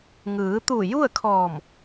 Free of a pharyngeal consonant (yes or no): yes